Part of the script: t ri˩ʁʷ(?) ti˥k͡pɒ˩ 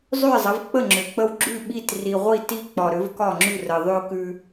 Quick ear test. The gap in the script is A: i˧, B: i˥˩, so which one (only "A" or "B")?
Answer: B